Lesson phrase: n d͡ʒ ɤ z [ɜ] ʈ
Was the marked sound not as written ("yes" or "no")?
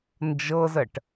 no